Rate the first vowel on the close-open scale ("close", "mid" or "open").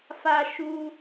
open